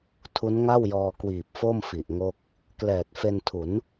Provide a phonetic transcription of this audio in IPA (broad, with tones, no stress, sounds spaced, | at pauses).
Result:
tʰ u˦˥ n ŋ a˥˩ w j ɔː˧ k w iː˨˩ p̚ f o˥˩ m f i˨˩ ʔ ŋ o˥˩ k̚ | k l ɛː˨˩ t̚ f e˧ n tʰ u˩˦ n